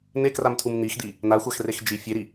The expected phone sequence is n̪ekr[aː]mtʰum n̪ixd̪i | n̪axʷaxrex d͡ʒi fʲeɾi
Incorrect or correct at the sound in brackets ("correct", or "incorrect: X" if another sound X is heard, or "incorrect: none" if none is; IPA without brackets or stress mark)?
incorrect: a